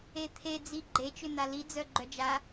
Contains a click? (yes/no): yes